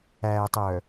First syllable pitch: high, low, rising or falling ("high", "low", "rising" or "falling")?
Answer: low